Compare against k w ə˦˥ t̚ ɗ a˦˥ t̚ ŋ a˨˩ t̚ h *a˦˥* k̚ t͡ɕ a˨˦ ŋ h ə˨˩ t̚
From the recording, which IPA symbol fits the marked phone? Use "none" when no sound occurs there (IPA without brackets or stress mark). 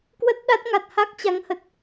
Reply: a˦˥